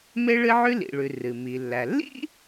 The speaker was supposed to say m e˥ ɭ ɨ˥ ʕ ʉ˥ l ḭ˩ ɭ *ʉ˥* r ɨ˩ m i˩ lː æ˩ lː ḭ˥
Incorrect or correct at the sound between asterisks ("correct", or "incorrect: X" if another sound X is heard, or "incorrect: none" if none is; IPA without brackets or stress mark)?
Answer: incorrect: ʉ˩